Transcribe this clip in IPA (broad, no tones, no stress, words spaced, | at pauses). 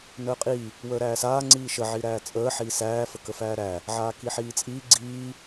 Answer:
nəːqʼi | wəːɾæːsaː ŋ͡ǀiːʃə ʕiɾæːt͡sʼəː ħiːsæː fəkəfæːɾæ | ʕaːkiħiːt͡sʼiː ɡ͡ǀiː